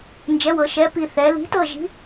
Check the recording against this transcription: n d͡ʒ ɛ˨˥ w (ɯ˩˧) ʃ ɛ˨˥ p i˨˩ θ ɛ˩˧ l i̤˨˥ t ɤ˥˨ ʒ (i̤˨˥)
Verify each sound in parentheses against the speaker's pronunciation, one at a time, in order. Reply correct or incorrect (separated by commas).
incorrect, correct